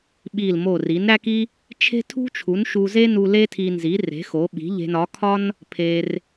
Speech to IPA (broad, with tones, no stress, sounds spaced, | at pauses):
ɓ i˥˩ l m o˥˩ r i˩˥ n ɾ æ˥ k i˥ | t͡ʃʰ e̤˥ tʰ ṳ˥ t͡ʃʰ u˩˥ n ʃ u˧ z e˥ n u˧ l e˥ tʰ i˧ n z i˩˥ r e̤˩˥ x o˩˥ ɓ i̤˩˥ ʎ e̤˧ n ɒ˩˥ kʰ ɒ˥ n | pʰ e˧ r